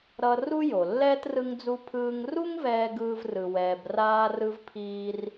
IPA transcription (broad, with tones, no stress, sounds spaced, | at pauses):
ɾ ʌ˧ r u˥ j o˩ lː ɛː˥ t r ɯ˧ ŋ d͡z u˧ pʰ ɯː˧ ŋ r u˥ ŋ v ɛː˧ ɡ ɯː˥ v r ɯ˧ w ɛː˧ b r aː˥ r ɯ˥ v pʰ iː˥ r